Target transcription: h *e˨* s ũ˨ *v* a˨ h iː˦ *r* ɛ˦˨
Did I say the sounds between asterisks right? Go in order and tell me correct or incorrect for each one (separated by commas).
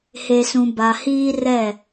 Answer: correct, incorrect, correct